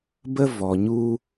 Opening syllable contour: high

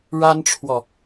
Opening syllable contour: high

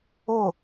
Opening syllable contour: falling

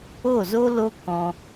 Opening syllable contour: falling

